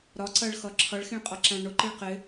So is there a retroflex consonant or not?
yes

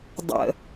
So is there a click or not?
no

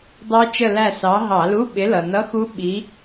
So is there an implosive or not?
yes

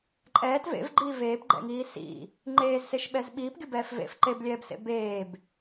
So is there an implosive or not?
yes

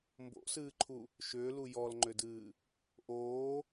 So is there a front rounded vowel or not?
yes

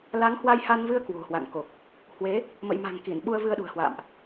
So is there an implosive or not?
yes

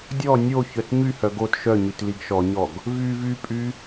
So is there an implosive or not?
no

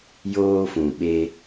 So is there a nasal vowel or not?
yes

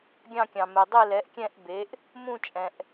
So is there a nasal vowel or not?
yes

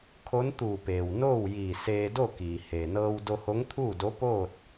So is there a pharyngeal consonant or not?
no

